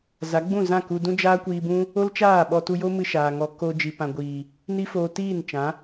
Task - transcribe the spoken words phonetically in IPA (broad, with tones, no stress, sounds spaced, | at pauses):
z a˨˦ ɡ͡b ũ˦˨ z ã˦˨ k u˧ d ũ˦ d͡ʒ aː˦ kʷ iː˧ b ũ˦ | o˦ l t͡ʃ aː˦˨ ɓ ɔ˧ t u˧ j o˦ m ɨ˧ ʃ aː˨ ŋ ɔ˧ k o˧ d͡ʒ i˨ p ã˨ ɡʷ iː˨ | n i˦ f oː˧ t iː˦˨ n t͡ʃ ã˨˦